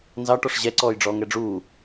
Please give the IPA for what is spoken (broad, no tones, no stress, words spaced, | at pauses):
nzɑʈɔʂ ʑɛǀɔːjɖ͡ʐɔːŋ ɛɖ͡ʐuː